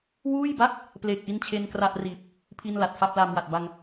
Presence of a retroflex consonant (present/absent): absent